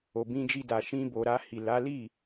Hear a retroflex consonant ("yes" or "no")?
no